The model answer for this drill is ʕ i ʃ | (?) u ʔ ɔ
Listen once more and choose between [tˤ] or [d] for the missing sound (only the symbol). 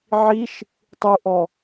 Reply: tˤ